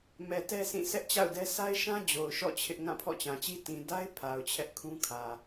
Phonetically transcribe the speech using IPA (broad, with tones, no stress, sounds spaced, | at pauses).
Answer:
m ɛ˨ t ɛ˦ s ĩ˦˨ s ɛ˦ ʔ t͡ɕ a̰˦˨ ʊ̯ d ɛ˦ s a˦ ɪ̯ ʃ ã˦ d͡ʑ o˨ ʊ̯ ʃ ɔ̰˦˨ t͡ɕʰ ɪ˦ ʔ ŋ ã˦˨ pʰ ɔ̰˦˨ t͡ɕ ã˨ t͡ɕ i˦ t ĩ˨ d a˦ ɪ̯ pʰ a˨ ʊ̯ t͡ɕʰ ɛ˦ ʔ kʰ ũ˦ kʰ ä˨